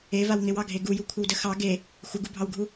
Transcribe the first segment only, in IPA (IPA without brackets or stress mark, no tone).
e